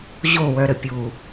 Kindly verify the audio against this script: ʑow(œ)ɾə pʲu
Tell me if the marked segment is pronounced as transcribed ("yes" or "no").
yes